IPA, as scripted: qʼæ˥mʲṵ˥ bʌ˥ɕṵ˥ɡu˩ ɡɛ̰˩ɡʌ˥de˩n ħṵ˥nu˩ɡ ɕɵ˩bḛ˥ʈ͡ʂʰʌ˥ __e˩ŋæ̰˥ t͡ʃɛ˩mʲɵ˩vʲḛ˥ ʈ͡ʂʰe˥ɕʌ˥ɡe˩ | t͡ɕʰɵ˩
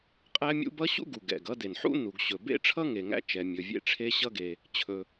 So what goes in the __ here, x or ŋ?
ŋ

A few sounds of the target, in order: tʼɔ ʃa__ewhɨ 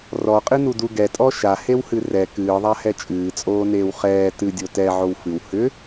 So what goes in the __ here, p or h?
h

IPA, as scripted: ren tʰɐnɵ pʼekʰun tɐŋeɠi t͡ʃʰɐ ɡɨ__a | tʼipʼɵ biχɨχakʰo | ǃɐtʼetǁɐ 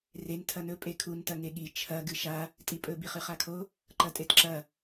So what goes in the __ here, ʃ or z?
ʃ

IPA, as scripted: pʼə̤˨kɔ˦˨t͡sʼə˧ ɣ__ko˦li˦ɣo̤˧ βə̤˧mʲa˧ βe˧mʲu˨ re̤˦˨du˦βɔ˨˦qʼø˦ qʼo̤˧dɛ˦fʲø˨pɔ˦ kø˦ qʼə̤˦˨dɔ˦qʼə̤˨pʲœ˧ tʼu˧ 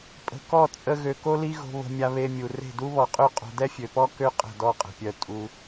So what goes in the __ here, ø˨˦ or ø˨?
ø˨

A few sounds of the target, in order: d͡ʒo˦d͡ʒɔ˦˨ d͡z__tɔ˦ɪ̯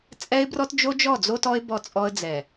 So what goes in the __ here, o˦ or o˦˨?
o˦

